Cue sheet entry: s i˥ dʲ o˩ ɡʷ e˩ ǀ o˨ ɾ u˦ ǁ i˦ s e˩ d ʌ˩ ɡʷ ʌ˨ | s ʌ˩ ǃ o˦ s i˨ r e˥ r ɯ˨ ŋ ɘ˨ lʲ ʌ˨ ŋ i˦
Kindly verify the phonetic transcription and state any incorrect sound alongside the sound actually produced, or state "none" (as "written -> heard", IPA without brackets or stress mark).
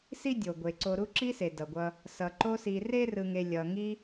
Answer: ɘ˨ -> e˨